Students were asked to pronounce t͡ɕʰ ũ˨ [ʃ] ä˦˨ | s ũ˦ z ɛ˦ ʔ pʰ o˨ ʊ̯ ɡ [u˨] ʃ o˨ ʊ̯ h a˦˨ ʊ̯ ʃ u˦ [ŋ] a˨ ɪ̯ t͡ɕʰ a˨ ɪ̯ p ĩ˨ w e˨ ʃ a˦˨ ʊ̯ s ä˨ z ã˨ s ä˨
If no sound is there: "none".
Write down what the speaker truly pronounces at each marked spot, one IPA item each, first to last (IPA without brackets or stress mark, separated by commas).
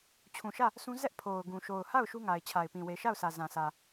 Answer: ʃ, ũ˨, ŋ